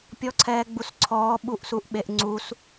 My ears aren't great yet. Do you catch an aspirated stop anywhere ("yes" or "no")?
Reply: yes